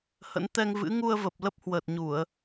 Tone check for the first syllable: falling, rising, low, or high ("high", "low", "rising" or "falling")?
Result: rising